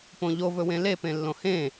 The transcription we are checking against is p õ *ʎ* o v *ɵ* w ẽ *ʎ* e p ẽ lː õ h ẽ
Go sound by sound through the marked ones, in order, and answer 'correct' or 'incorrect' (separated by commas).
correct, correct, incorrect